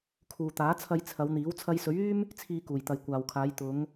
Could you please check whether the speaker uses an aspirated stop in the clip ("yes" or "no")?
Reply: yes